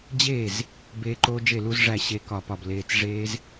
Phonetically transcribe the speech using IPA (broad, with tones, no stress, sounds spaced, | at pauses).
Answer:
d͡ʑ eː˥˩ z | b eː˦˥ ǃ oː˦˥ d͡ʒ e˥˩ l u˦˥ z ʐ æ˥˩ ɕ e˦˥ k ɒ˥˩ p ɒ˥˩ b l eː˦˥ t͡s ʐ eː˦˥ z